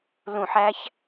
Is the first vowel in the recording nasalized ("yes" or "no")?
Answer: yes